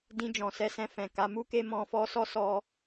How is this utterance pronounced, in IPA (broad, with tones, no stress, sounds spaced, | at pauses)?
d ĩ˧ d͡ʒ ɔ̃˨ s ɛ˧ s ɛ̃˧ f ɛ̃˨ k a˨˦ m u˦ k e˦ m ɔ̃˧ f ɔ˧ s ɔ˦ s ɔ˧